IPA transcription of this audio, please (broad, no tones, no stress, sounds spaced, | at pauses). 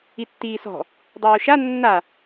i tː iː s ɔ̤ | dˤ ɘː o̯ ʃ a nː a